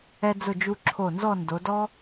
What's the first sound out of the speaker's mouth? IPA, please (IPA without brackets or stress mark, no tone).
ɛ